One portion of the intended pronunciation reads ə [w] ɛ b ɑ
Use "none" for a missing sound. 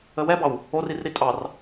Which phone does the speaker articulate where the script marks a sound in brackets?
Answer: w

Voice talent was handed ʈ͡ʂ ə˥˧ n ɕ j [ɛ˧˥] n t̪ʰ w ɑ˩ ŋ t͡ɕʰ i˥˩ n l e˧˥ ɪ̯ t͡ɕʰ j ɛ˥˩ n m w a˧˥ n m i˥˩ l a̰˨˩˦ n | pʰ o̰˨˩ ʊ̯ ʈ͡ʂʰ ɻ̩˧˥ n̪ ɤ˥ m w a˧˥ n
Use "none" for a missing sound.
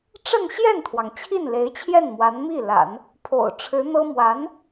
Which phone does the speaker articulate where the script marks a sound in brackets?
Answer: ɛ˥˩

